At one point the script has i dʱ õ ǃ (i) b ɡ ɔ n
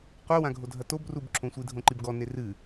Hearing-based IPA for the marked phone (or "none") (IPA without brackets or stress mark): i